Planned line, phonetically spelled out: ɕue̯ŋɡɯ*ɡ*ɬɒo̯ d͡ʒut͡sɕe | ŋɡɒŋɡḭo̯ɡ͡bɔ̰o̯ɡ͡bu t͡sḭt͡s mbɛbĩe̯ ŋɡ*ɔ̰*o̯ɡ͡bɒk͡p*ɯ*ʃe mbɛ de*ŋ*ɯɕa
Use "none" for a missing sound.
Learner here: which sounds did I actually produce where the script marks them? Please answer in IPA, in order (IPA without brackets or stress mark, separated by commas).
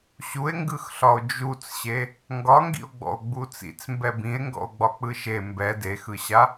x, ɔ̰, ɯ, x